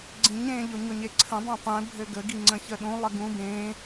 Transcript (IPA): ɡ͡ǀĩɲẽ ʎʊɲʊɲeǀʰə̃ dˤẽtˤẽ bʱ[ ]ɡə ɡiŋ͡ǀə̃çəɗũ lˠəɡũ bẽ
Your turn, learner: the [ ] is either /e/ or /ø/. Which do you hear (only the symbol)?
ø